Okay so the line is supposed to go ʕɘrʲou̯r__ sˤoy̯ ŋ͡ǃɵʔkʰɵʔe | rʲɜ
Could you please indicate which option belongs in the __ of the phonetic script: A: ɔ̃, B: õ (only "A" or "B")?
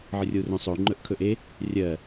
B